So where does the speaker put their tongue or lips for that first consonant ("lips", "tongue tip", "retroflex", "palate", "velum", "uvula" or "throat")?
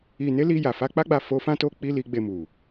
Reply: tongue tip